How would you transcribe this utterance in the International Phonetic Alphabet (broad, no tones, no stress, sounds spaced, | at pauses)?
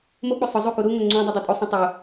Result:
m o k͡p o sˤ ʊ zˤ u k u ɾ u ŋ o ŋ͡ǀ ũ dˤ o dˤ u tʼ u sˤ õ tˤ u